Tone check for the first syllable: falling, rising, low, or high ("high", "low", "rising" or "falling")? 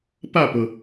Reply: falling